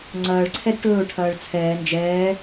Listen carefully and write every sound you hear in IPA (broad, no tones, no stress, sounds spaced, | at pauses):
ŋ͡ǀ ɐː ɭ ǀʰ ɛ d ʈ ɵː ʈʰ ɐː ɭ t͡sʰ ɛː n d͡ʒ ɛː